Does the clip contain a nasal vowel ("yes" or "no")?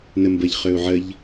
no